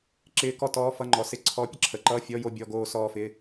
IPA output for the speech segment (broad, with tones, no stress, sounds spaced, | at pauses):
ǁ ɪː˧˥ k ɔ˥ t ɔː˧˥˧ f ʌ˧˥˧ ŋ͡ǃ ɔ˩˥ s ɪ˧˥˧ ǀʰ ɔ˧˥ pʲ ə˥ ǁʰ ə˩˥ ǃ ʌː˧˥˧ fʲ ɔ˧˥˧ j o˥˧ bʲ ɔ˧˥˧ ɡ oː˥˧ s ɔː˥˧ f ɪ˧˥˧